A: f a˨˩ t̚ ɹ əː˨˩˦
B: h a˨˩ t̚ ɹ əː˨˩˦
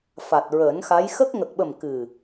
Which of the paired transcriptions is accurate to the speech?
A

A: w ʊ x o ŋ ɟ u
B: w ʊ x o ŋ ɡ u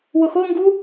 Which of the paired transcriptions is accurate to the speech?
B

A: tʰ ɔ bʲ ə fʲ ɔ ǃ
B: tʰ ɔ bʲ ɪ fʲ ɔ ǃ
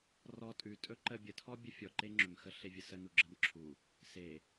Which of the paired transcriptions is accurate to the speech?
A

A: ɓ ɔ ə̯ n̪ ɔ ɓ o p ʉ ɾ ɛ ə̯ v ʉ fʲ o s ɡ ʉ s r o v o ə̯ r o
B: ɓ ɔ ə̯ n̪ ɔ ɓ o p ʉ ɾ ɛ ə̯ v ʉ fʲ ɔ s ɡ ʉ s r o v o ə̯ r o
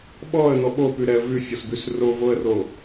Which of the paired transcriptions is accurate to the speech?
B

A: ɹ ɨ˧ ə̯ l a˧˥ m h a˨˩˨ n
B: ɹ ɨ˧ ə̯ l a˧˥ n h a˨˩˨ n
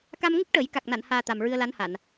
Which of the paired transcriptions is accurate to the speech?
B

